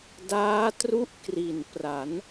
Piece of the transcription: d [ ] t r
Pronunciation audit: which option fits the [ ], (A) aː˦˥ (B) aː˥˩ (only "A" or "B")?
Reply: A